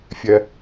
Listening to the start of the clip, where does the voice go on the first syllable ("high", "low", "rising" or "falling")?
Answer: low